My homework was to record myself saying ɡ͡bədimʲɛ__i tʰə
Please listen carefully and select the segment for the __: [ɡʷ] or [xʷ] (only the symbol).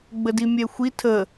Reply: xʷ